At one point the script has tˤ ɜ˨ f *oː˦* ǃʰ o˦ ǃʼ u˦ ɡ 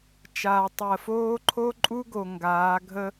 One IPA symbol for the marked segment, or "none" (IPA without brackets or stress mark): oː˦